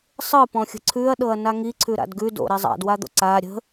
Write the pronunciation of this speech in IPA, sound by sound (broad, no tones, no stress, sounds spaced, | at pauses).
sˤ ɯ p ɔ̃ xʲ ə̤ ǀʰ ʉ ɐ̯ ɗ ɤ ɐ̯ n a ŋ i ǀʰ ʉ ɾ a̰ d ɡ ʉ d o̰ ɾ ɛ zˤ a̰ d w a d̪ o̰ ǀ a ɾʲ ə̤